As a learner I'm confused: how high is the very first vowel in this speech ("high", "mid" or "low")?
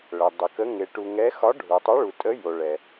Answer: mid